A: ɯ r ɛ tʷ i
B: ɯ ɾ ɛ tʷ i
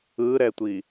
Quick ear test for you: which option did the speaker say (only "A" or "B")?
B